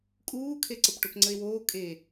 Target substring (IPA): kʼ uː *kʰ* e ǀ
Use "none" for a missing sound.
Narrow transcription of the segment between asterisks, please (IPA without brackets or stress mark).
kʰ